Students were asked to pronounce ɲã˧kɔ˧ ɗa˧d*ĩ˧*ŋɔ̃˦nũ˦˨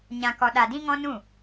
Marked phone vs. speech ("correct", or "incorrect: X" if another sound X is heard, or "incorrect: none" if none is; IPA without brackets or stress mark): incorrect: ĩ˦